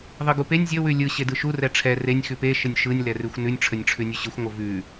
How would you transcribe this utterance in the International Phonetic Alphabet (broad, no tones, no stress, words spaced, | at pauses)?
ðˤɯɡupenʲ zʲə wʉlʲɯ ɕedɯʃu rɛʈ͡ʂʰɛ renʲ xʉpe ʃənʲʃɯnʲ lɛrʉxʷnʉnʲ ʈ͡ʂʰənʲʈ͡ʂʰʉnʲʉɕɯxʷ ŋʷəvʉ